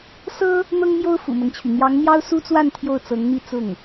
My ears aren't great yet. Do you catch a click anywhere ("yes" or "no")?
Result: no